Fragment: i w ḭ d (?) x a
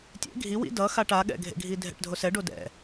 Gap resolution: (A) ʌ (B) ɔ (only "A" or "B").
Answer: A